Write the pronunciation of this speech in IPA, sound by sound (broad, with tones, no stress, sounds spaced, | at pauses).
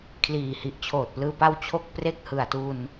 kʰ l iː˨˩ h i˨˩ ʔ t͡ɕʰ oː˨˩ t̚ p l ɯː˧ p a˥˩ w t͡ɕʰ o˥˩ k̚ p r e˥˩ k̚ h ɯ˨˩ a̯ t u˧ n